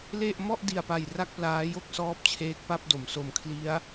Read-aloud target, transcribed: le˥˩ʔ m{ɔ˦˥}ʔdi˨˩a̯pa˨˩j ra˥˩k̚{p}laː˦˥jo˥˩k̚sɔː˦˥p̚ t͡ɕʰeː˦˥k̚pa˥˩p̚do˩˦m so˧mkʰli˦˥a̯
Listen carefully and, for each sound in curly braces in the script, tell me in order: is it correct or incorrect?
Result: incorrect: ɔ˥˩, correct

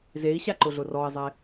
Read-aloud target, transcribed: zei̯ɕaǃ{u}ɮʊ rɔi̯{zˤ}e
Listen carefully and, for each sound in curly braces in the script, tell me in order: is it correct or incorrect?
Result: incorrect: ʊ, correct

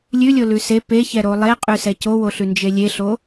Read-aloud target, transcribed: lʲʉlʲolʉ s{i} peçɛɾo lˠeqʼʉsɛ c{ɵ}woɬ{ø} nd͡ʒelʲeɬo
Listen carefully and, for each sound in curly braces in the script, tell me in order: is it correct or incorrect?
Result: incorrect: e, incorrect: o, incorrect: ʉ

